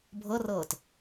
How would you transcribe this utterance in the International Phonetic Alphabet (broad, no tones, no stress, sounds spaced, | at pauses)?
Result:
bʱ ɤ r ɤː t